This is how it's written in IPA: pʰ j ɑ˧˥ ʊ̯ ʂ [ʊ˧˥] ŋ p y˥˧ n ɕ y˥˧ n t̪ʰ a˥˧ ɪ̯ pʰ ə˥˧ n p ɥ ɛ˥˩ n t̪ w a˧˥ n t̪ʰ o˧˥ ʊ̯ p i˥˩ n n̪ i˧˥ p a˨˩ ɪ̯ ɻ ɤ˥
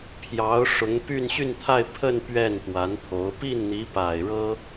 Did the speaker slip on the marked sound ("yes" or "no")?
no